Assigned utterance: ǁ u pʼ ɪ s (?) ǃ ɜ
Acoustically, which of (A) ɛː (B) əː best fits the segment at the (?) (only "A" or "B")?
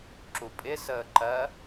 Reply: B